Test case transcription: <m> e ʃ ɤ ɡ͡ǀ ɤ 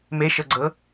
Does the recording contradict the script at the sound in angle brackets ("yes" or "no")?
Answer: no